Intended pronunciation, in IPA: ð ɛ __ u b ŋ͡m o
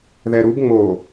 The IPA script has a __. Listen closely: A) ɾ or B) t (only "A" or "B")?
A